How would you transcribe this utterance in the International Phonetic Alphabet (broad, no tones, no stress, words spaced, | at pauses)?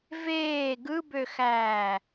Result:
veː ɡɯbøxæː